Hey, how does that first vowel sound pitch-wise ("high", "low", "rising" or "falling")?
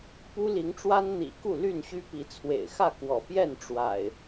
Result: high